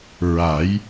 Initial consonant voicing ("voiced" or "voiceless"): voiced